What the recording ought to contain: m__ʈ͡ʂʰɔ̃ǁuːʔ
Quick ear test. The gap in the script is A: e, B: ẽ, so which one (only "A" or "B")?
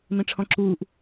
B